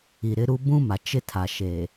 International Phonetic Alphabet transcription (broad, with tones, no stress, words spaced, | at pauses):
i˨ɾɪ˦ɾu˦ bũ˦ma˨ t͡ʃɪ˦tʰa˨ʃe˨